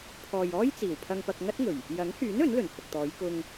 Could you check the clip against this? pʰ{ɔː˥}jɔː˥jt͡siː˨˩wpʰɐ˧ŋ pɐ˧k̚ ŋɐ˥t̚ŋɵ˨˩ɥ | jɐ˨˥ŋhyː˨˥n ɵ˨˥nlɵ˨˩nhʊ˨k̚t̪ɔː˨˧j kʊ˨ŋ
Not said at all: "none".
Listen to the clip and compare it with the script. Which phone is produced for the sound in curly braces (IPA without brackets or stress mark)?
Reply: ɔː˨